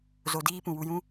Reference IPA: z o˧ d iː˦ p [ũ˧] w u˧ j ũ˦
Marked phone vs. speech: incorrect: ũ˨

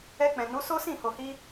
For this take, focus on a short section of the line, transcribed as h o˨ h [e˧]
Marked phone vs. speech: incorrect: i˧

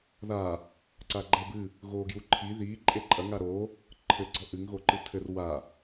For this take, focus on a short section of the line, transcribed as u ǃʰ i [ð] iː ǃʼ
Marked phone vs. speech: correct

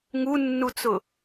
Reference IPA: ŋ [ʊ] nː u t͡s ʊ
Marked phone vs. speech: incorrect: u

